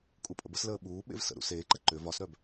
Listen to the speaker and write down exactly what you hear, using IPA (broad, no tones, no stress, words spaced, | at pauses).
kʼupʼə̰bəsləː ɓuː ɓḛvsə̰ɾṵ seːǃə ǃʏ vɒsɾœb